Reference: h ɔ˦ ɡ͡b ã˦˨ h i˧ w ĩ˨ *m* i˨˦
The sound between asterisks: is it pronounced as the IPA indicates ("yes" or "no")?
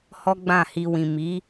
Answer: yes